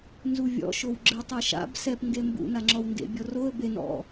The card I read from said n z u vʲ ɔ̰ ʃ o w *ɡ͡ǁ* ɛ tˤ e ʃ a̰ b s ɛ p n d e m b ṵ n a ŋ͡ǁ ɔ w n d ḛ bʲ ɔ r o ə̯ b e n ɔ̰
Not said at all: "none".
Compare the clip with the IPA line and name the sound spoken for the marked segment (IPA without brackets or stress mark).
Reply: ɡ͡ǁ